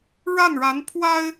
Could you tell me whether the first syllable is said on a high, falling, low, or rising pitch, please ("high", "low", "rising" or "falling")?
falling